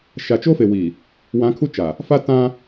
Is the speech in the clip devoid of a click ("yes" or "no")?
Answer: yes